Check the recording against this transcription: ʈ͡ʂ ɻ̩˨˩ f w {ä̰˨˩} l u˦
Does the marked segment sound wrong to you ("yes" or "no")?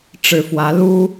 yes